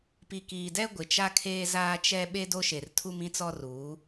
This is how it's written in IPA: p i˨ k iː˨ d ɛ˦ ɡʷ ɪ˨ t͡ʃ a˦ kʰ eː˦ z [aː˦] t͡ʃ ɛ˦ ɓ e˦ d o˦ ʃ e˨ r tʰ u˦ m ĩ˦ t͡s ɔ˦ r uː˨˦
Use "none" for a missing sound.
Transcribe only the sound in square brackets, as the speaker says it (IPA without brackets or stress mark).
aː˦